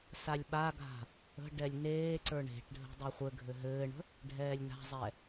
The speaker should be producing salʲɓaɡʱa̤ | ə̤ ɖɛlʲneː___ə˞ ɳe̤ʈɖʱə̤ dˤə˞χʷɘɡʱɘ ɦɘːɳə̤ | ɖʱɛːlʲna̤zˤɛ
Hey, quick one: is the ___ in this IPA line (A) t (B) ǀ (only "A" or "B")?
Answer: B